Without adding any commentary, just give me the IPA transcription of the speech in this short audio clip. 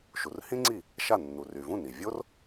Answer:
ʃu˩rhĩ˥ŋ͡ǀi˥˩ | ʃa˥˩ nːu˩ry˩ vũ˥˩ni˩ vʲo˥r

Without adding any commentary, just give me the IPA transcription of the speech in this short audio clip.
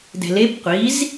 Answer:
dɛ̤leb qʷiz

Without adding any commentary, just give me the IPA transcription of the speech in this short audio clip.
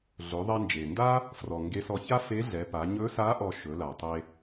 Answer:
ɮɵ˩˧ðˤɛ˧nd͡ʒe˩nda˥ | frɔ˩ŋɡe˧˥sɔ˧ ça˥fe˧˥ɮɛ˩˧pa˩˧ ɲɵ˧˥sa˧˥ ʔɔ˧ʃɵ˩˧la˩tˤe˧

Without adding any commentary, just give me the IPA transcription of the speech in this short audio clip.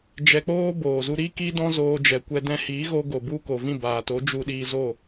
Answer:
d͡ʒɛ˧k͡poː˦ boː˨ zu˧ɾi˦ki˦ dɔ̃˦zoː˧d͡ʒɛ˨kʷɛ˧ dɛ̃˧hi˨˦ ɣo˧ɡo˨bu˧ ko˨vĩ˦˨baː˨to˨˦ d͡ʒu˧ɗiː˧zo˦˨

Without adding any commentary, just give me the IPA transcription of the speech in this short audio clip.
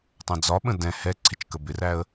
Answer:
tˤɛ̃d͡zɒɓə̃ dɛ̃ hɛ ǀʰɪt͡ʃkəbɪræə̯

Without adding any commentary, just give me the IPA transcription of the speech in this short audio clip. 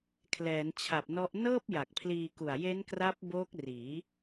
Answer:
kʰlɛː˩˦nt͡ɕʰa˨˩p̚nɔ˦˥ʔ nɤː˥˩p̚ ja˨˩k̚pʰliː˧ku˨˩a̯ je˦˥nkra˦˥p̚ boː˦˥k̚riː˩˦

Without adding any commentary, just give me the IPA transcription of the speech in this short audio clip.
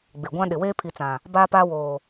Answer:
ɡ͡bɪ˨ɡʷã˦ ɗɪ˨weː˦pʰi˨t͡sã˨ | baː˦paː˦woː˨

